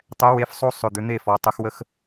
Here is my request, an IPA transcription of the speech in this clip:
tˤ ɛ˨˥ w e˨˥ f sˤ o˦ sˤ ʏ˨˩ d̪ ʏ˩˧ n̪ e˦˨ f ɔ˩˧ tˤ ə˩˧ x w ə˦ x

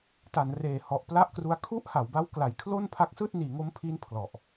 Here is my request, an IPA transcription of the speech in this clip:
t a˩˦ n r eː˨˩ h ɔ˨˩ ʔ p l a˥˩ ʔ k r u˦˥ a̯ kʰ u˥˩ ʔ h a˩˦ w b a˦˥ w k l a˨˩ j kʰ l o˥˩ n pʰ a˦˥ k̚ s ɯː˥˩ t̚ n iː˩˦ ŋ o˦˥ m pʰ iː˦˥ n pʰ l ɔ˨˩ ʔ

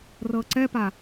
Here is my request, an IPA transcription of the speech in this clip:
r ɤ ǀ ɛ p a

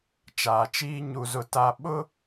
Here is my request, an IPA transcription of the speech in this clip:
t͡ʃ aː˨ t͡ʃ iː˦ ɲ u˦ z ʊ˦ t a˦ ɓ ʊ˦

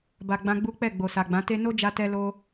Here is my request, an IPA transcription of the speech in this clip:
b a˨ ɡ͡b ã˧ ɡ͡b u˦ k͡p ɛ˦˨ ɡ͡b o˨ s a˨ ɡ͡b ã˨˦ t e˧ n o˦ d͡ʒ a˧ t ɛ˧ l o˧

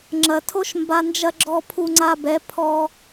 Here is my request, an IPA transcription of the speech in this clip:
ŋ͡ǁ ɐ˨ tʰ o˦ ʃ m b a˧ n d͡ʒ ɐ˧ ɡ͡ǁ ɔ˧ pʰ u˧ ŋ͡ǀ a˧ b ɛ˨˦ pʰ ɔ˧

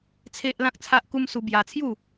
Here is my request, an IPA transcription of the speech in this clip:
t͡sʰ e˦ ʔ l ã˦ k̚ t͡sʰ a˦ ʔ k u˦ m s u˧ b j a˧ t͡sʰ j u˥˧

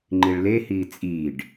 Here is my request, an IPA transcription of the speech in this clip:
ŋ͡ǃ i ɭ l e h iː t͡sʼ iː ɖ

